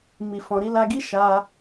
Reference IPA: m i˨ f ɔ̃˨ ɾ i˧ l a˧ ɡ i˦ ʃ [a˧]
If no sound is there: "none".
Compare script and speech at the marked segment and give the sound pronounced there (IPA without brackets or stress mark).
a˧